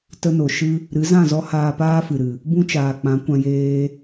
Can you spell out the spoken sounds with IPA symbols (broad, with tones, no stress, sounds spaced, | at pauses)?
t ə˧ n o˨ ʃ ɨ˧ | ɾ ɨ˨˦ z ã˦˨ z ɔ˦ h aː˧ p aː˦ f ɨ˨ ɾ ɨ˨ | b ũ˦ t͡ʃ aː˨ k͡p ã˨˦ kʷ ã˧ j eː˧